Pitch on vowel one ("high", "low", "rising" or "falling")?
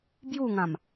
falling